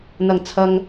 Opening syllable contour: low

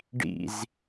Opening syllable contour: falling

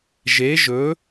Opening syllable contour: rising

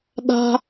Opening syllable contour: high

